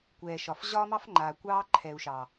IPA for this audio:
kʷ ɛː˨ ʃ ɒ˨ f ʑ ɒː˦ m ɑ˦ f ŋ͡ǃ aː˨ kʷ ɑː˦ ǃʰ ɛ˨ u̯ ʃ ɑ˨

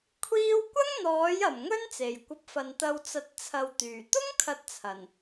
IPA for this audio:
kʷʰ iː˧ w kʷ ɐ˥ ŋ n̪ ɔː˨˥ j ɐ˨˩ m ŋ ɵ˥ n t͡s e˨˩ j kʷ ɐ˧ p̚ f ɐ˨ n t̪ ɐ˧ w t͡s ɐ˨˥ t̚ t͡sʰ ɐ˨ w t̪ yː˨˩ t̪ ʊ˥ ŋ kʰ ɐ˨˥ t̚ t͡sʰ ɐ˨˩ n

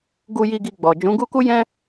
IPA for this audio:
ɡ u˧ j i˧ ɡ i˧ ɡ͡b ɔ˨ d͡ʒ ũ˨˦ ɡ u˦ k u˦ j ɛ̃˦

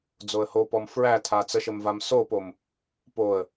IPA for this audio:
d͡z o ə̯ h o p ɔ m f ɹ æ tʰ a t͡s ə ʃ ə m v a m s o p o m | p o ə̯

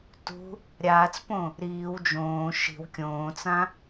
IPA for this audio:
t ṳ | ɾʲ aː t͡s p õ | ɾ iː w d͡ʒ õː ʃ i̤ w kʲ õː t͡s ã

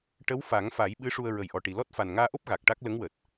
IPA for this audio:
ʈ ə˧˥ w f a˨˩˦ ŋ f a˨˩˦ j ɓ ɨ˧˥ ʂ u˧ ə̯ ɹ ə˨˩ j ʔ ɔ˨˩ ʈ i˨˩ l ɔ˦˥ t̚ f a˨˩ n ŋ aː˧ ʔ o˦˥ p̚ ɣ a˨˩ k̚ ʈ a˦˥ k̚ l ə˧˥ ŋ w əː˨˩ t̚

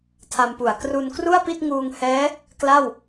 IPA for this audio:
tʰ a˧ m p u˨˩ a̯ k r u˧ n k r u˥˩ a̯ p i˥˩ t̚ ŋ uː˧ ŋ h ɛː˦˥ | k l a˥˩ w

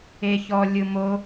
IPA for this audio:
e ç ɔ lʲ ɯ m o

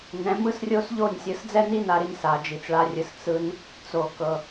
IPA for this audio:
n ɛ̃˨˦ m ɯ˦ s rʲ o˦ s ʎ o˦˨ nʲ sʲ ɯ˨ s d͡z ɛ˦ n i˦ n a˨ ɾ i˧ n s a˨ d͡ʒ i˨ t͡s ɭ a˧ rʲ ɯ˨ s t͡s ɯ˧ n | t͡s o˨ k ɤ˨

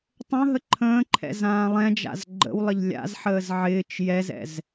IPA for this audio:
tˤ ə̃ ɦ ə ǃʰ ə̃ː ǃʰ ɛ̰ z ãː lˠ ɛ̃ d͡ʒ a̰ z ɡ͡ǃ ə̰ w lˠ ə ʎ lʲ a̰ z ħ əː z ʕ ɪː t͡ʃ j ɛ z ɛ̰ z

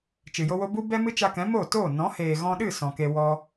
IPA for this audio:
t͡ʃ ɨ˨ j o˦ w o˦ b u˦ b ɛ˦ m ɨ˦ t͡ʃ a˧ k ɛ̃˨˦ m o˦˨ t oː˦˨ n ɔ̃˨˦ h eː˨ ɣ ɔ̃˧ ɗ ɨ˦˨ s ɔ̃˨ k e˧ w ɔ˦

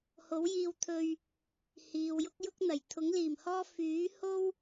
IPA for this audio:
h o˨˥ w j iː˧ w t̪ʰ ɵ˧ ɥ | h iː˨ w j ʊ˥ k̚ j ʊ˥ k̚ n̪ ɐ˨˩ j t̪ʰ ʊ˨˥ ŋ l iː˨˩ m h ɔː˥ f yː˨˥ h o˥ w

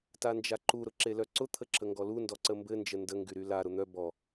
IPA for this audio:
t a n d͡ʒ a ǃ u ɾ ʊ ǁ e l œ ǀ ʊ t̪ʰ ə ǁ ə ŋ ɡ ɔ l u n d ɔ ǀ ə m b ɘ n d͡ʒ ə n d ə ŋ ɡ y ɾ y l a ɾ ʊ n̪ œ b ɔ

